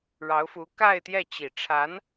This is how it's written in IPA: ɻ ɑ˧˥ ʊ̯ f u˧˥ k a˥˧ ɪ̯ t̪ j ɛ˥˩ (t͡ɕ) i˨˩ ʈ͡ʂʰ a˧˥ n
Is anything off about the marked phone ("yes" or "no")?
no